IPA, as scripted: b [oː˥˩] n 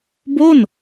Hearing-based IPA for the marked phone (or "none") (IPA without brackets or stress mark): o˥˩